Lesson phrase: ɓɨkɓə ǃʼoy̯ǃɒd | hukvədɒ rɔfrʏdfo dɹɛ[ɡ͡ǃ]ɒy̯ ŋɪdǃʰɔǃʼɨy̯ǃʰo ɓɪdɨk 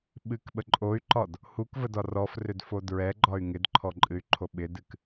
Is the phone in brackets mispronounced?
no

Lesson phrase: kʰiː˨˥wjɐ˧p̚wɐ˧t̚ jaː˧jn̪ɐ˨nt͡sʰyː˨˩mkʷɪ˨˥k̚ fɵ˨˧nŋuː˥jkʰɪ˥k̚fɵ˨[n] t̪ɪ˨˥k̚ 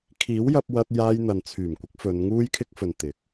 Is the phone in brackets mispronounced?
no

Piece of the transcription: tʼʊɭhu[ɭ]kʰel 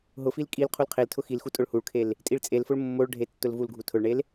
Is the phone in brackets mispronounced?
no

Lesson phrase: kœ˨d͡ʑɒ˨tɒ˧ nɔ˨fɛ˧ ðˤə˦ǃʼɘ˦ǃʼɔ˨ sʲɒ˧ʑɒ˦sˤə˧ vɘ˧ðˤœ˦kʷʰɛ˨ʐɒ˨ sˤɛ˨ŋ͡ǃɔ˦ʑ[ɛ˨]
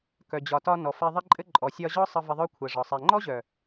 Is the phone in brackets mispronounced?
yes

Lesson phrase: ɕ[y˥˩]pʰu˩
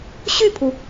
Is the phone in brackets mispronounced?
no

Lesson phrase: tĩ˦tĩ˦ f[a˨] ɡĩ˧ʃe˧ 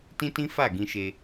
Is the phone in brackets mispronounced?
yes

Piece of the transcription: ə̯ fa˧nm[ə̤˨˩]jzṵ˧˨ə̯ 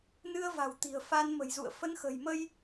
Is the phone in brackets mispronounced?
no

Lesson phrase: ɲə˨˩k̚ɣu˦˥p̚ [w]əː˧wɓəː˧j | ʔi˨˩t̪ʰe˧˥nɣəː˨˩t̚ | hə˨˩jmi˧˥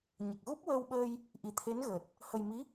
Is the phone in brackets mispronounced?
no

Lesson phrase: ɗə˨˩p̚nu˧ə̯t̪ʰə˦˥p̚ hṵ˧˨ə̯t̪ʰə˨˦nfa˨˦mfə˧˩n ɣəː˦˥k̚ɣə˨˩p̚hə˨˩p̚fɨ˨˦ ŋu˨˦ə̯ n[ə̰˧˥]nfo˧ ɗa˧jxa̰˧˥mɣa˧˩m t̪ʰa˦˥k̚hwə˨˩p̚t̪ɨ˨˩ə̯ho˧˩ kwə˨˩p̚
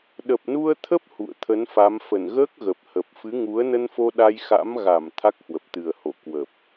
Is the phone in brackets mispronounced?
yes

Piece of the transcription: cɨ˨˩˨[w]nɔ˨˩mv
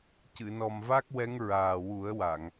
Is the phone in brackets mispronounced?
yes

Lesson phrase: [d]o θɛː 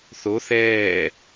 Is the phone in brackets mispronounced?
yes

